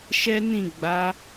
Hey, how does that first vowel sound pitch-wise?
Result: high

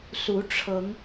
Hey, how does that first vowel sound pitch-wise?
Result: rising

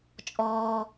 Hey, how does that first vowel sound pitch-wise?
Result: low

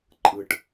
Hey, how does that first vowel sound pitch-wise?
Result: low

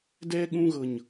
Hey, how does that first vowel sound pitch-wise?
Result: high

